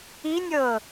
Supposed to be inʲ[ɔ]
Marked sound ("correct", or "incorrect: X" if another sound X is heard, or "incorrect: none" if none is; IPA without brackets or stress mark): incorrect: ɤ